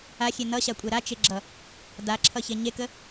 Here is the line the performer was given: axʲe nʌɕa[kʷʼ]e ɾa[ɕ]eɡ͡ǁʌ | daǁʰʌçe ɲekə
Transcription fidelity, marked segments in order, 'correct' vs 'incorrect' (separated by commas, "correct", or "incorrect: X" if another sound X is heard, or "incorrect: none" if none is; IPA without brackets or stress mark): correct, incorrect: t͡ʃ